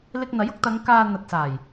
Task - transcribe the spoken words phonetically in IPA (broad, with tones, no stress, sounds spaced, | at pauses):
l ɪ˧ k̚ n̪ ɐ˨˥ j ʊ˧ k̚ t̪ ɐ˨˧ ŋ k aː˨ n̪ ɐ˨ t̚ s aː˨˩ j